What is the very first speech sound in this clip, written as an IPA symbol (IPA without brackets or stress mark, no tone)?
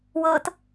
w